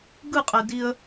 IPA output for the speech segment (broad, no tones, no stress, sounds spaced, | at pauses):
ɡ ɯ qʼ ɛ d i ə̯